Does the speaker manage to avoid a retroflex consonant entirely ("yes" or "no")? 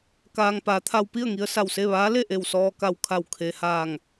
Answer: yes